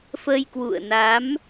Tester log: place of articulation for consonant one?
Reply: labial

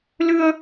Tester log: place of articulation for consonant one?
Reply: alveolar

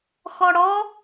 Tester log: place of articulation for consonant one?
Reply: velar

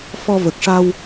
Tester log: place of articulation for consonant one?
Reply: labial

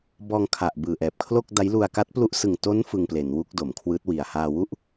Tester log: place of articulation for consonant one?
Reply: labial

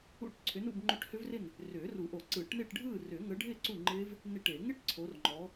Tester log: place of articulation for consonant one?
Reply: retroflex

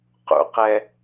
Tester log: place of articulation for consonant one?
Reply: uvular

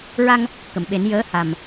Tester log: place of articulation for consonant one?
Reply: alveolar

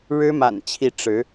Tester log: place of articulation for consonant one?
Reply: retroflex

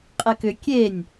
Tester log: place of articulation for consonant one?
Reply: uvular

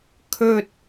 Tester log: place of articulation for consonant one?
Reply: velar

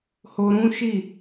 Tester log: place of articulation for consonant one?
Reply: glottal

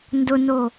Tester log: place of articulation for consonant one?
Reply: alveolar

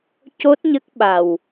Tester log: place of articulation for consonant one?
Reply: palatal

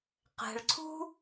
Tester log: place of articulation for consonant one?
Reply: uvular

